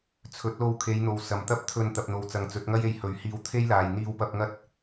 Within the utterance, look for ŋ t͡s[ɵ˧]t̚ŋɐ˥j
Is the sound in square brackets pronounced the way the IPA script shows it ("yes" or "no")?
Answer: no